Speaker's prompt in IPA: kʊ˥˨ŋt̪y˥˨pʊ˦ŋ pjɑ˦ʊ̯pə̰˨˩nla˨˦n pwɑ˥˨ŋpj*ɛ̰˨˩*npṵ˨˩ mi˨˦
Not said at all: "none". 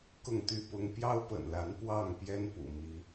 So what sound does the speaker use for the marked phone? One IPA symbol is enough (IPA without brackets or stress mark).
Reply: ɛ˦